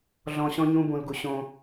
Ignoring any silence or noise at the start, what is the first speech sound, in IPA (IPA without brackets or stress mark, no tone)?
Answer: ɮ